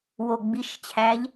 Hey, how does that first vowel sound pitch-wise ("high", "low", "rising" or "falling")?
low